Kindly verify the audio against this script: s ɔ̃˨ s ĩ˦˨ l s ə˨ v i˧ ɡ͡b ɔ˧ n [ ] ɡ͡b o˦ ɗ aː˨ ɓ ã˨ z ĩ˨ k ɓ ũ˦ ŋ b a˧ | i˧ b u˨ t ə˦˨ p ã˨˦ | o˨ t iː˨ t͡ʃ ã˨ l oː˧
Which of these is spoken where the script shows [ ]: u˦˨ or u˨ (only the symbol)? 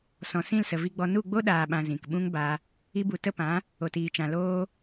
u˦˨